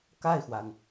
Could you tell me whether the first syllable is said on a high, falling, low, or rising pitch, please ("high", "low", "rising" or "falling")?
falling